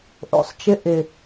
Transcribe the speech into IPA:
ʔ o̰˨ sˤ t͡ʃ ɪ˦ ʔ ɪ˨

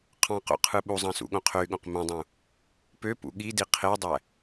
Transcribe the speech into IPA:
qʰ ɑ̃ q o̰ qʰ ɯ ɓ u zˤ ɑ̃ s ṵ ɠ õ qʰ ø y̯ ɠ õ q m õ dˤ ũ | p ø p ṵ ɠ i d i qʰ e dˤ æ

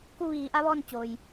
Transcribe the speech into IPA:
k u˥˨ ʋ iː˩˧ ʔ a˧˥ ʋ ɔː˥˨ n t͡ɕ oː˩ j

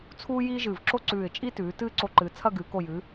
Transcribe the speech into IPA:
t͡sʰ uː˥ j iː˥ ʒ ɨː˧˩ v ǁ o˥ ǀ ʉː˧˩ ɪ̯ t͡ʃʼ i˥ t ʉː˩˧ t ɨː˥˧ ǀ o˧ ǃ ɨː˩˧ t͡sʰ ɐ˥˧ ɡ ɨː˩˧ k o˧˩ j ɨ˩˧

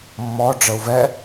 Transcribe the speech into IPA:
mː ɔ ɖ͡ʐ ə u̯ v ɛ

